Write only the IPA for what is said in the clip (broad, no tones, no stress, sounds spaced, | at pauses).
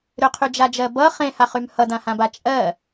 ɾ ʏ qʰ y d͡ʒ a d͡ʒ ɜ b ʌ χ ẽ h a χ y m h ʌ d ã h ã b a t͡ʃʼ ɜ